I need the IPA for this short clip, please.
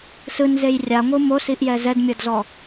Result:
s ɯ n z e j rʲ a ŋʷ ɯ m o s i ʔ j ɛ z ɛ d mʲ ɤ d z ɔ

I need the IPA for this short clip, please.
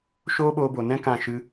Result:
ʃ oː˦ ɓ oː˧ b o˨ n ɛ̃˦ k ã˦˨ ʃ ɨ˦

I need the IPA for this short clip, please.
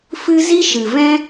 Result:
f ɨ˦ z i˦ ʃ ɨ˨ v ɛ̃˦

